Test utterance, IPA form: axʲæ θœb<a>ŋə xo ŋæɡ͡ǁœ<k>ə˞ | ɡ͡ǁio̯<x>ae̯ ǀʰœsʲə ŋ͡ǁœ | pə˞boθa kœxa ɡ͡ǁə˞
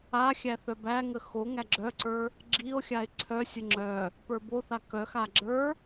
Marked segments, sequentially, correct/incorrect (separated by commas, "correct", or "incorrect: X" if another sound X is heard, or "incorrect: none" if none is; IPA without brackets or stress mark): incorrect: æ, incorrect: ǀ, incorrect: xʲ